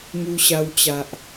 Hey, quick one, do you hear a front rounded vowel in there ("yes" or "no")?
no